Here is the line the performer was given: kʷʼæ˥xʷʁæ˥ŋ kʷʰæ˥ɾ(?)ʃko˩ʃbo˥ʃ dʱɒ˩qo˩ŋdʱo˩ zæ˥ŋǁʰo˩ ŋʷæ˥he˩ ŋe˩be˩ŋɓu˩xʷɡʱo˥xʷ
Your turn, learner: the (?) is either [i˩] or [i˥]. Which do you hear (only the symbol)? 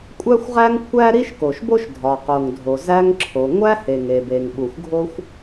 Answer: i˥